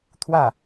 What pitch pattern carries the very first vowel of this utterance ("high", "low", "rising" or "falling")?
falling